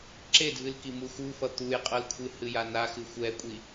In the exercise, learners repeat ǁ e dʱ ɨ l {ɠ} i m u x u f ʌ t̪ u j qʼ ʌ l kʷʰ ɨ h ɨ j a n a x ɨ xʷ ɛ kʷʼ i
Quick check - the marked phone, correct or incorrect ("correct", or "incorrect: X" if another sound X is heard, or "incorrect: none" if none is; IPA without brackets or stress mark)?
incorrect: k